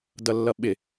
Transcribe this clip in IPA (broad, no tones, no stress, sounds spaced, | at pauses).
d ʌ lː ʌ ɓ ɪ